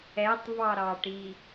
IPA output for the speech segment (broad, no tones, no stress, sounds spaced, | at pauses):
ɛ tˤ v ɑ ɾ ɑ ʈ i